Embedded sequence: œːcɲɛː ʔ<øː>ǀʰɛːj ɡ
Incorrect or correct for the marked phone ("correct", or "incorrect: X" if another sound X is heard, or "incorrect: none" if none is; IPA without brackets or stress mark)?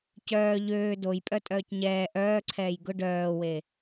incorrect: œː